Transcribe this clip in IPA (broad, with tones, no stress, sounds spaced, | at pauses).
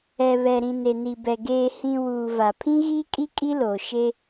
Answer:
ɛ˨ β ɛ˨ ɾ ĩ˨ n e˨ n i˨ b ɛ˨ ɡ eː˨ h ĩ˨ w uː˨ v a˨ pʰ ĩ˦ ɣ iː˦ kʼ i˦ kʼ i˦ l oː˨ ʃ e˦